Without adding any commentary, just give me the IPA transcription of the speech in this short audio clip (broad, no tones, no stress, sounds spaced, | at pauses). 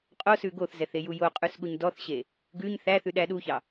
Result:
qʼ o s ʉ ɡ o θ z ɛ θ e j u j o qʼ ʉ s ɠ u ɲ d ɔ θ ɕ e | ɡ ʉ ɲ θ æ θ ʉ ɗ æ ɗ u ç ɑ